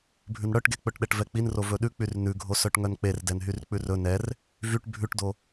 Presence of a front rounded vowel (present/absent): present